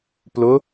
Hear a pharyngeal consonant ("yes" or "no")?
no